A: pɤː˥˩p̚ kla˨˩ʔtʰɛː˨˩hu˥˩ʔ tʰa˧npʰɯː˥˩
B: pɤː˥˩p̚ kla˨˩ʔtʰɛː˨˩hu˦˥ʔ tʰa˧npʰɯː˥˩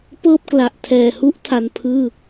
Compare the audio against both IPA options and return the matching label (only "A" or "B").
B